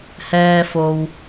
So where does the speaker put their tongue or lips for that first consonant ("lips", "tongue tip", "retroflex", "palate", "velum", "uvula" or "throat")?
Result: throat